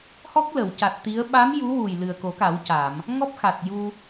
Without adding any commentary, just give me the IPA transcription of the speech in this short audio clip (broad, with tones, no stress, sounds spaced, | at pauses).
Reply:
h ɔ˦˥ k̚ l ə˨˩˨ w c a˨˩ t̚ t̪ i˧˥ ə̯ ɓ a˧˥ m j u˧˥ w u˨˩ j l ɨ˨˩ ə̯ k o˨˩˦ k a˨˩˦ w c a˨˩˨ m | ŋ ɔ˦˥ p̚ x a˨˩ t̚ j u˧